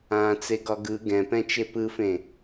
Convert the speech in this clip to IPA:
ãː t͡s e ɡ ɒ ɡ ɯ ɡ ɛ̃ p ɛ̃ t͡ʃ e p ɯ f ẽ

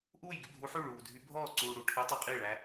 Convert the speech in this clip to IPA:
ʔ uː˥˨ j ɡ y˥˨ bʱ u˧˥ ħ y˥˨ ɭ uː˨ dʱ y˧˥ bʱ ɔː˥˨ ǀ uː˨ ɽ u˨ ʈʰ e˧˥ tˤ ʉ˨ qʼ i˥˨ ɭ æ˧˥

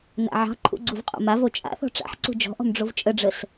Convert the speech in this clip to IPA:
n a̰ ʕ ɑ̤ ǃʰ ṵ ɡ͡ǀ u v qʼ o̰ m a v o t͡ʃʼ a̰ θ ɔ̤ ʈ͡ʂ a̰ ħ ǀ ṳ d͡ʒ ɔ̤ ʔ ɔ̤ m ɖ͡ʐ o v t͡ʃʼ ə ɖ͡ʐ ə s

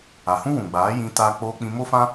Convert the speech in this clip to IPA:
a˨ h ũ˦ w ũ˨ ɡ͡b aː˨˦ j ĩ˧ t a˧ k͡p oː˧ k͡p ĩ˧ m o˦ f ã˦

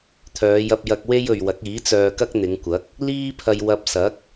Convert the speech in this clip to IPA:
t̪ʰ œː˨˧ j ɐ˧ p̚ j ɐ˧ k̚ w e˥ j ɵ˨ ɥ w ɐ˨˥ k̚ iː˨˥ t͡s œː˧ k ɐ˥ k̚ n̪ ɪ˨˧ ŋ kʷ ɐ˨˥ k̚ | l iː˥ pʰ ɐ˧ j w ɐ˧ p̚ s ɐ˨˥ k̚

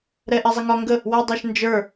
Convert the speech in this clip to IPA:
ɾ ɛ ʔ ɛ zˤ i ŋ ɒ ŋ ɡ ə | w a dˤ a ʃ n d͡ʒ ə˞

